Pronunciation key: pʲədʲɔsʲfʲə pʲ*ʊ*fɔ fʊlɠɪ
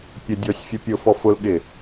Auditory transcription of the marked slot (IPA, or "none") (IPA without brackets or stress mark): ʊ